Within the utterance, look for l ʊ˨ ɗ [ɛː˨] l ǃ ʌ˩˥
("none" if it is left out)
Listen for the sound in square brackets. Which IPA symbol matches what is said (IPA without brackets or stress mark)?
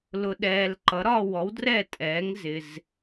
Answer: ɛː˨